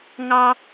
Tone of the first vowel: high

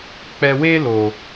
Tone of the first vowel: low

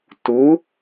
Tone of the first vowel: rising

